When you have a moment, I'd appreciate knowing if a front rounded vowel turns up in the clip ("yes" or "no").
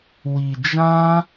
no